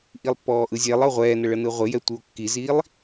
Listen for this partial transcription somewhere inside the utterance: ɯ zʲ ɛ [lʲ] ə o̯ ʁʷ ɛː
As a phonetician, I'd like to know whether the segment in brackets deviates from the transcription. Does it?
yes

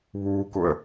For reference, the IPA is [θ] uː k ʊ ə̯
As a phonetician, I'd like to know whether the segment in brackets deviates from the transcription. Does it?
yes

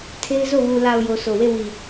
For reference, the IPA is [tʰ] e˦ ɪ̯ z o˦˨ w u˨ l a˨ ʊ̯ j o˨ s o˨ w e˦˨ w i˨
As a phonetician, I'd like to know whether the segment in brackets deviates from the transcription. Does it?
no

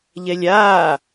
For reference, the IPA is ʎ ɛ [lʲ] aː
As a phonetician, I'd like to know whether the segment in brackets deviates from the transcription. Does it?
no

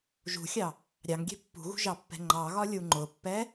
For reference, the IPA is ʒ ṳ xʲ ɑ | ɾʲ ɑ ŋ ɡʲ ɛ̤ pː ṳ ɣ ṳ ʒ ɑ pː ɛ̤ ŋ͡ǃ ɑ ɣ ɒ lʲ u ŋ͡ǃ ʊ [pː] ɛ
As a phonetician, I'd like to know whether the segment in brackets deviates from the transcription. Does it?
no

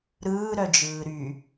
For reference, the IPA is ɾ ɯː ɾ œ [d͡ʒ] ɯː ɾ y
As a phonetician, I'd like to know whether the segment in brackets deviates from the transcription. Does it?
no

